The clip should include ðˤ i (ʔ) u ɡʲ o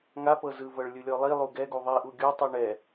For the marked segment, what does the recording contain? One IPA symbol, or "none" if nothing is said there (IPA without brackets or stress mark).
ʔ